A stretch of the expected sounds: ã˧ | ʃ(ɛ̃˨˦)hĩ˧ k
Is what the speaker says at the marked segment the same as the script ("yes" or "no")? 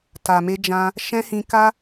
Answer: no